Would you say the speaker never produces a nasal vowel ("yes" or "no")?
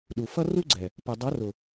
yes